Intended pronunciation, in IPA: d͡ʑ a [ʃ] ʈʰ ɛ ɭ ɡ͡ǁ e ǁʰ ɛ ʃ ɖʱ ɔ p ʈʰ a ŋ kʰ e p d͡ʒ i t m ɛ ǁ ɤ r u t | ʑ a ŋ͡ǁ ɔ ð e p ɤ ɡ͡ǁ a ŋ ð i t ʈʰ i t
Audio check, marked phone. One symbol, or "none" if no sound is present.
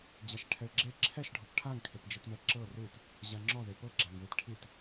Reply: ʃ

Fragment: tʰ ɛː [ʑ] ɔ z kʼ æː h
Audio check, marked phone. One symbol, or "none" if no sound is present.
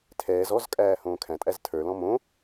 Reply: z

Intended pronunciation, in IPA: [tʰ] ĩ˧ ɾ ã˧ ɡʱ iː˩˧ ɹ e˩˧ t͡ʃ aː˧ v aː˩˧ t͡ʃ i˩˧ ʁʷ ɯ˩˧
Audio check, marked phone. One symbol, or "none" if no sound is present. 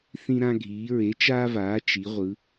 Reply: θ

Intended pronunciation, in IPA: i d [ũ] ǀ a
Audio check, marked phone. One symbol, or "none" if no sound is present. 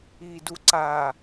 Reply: u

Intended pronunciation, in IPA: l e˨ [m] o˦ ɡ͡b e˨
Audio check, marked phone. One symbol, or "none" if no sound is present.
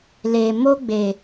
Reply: m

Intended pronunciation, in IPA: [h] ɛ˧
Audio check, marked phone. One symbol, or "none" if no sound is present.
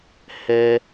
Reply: h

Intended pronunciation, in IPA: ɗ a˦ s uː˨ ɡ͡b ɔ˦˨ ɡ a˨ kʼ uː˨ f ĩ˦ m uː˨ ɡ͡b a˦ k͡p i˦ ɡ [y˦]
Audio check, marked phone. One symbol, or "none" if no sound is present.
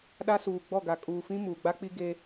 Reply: e˦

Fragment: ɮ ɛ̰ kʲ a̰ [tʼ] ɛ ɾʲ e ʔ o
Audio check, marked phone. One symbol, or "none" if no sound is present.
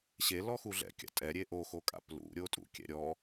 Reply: tʼ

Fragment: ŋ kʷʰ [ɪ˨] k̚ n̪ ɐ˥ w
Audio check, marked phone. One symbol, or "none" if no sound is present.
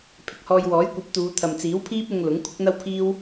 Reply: ɪ˥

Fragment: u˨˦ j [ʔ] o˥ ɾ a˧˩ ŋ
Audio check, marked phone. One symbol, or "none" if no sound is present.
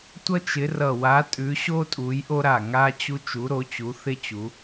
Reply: ʔ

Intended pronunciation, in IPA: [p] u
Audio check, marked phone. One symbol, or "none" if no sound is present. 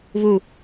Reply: β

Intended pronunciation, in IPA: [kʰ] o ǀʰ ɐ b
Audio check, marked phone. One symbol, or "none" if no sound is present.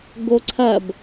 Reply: ɡ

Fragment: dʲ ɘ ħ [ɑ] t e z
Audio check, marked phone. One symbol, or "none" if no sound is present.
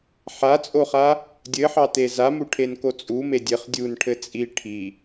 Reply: ɑ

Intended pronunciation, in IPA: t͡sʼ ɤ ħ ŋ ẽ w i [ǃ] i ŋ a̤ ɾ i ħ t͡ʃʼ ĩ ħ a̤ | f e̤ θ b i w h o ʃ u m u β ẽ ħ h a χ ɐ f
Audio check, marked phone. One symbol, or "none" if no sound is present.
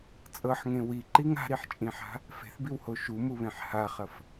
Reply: ǃ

